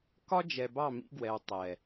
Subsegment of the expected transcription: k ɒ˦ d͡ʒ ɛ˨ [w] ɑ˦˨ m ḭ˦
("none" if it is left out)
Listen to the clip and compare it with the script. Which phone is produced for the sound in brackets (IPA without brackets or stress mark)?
b